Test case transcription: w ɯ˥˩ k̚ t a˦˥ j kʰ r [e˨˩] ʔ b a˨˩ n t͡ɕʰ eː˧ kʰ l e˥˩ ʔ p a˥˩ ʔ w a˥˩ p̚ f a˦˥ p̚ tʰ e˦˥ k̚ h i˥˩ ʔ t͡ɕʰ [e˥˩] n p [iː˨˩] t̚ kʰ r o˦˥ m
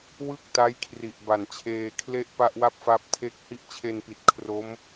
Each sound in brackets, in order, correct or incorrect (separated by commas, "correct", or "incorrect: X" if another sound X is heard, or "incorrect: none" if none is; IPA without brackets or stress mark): incorrect: i˨˩, incorrect: e˧, incorrect: i˨˩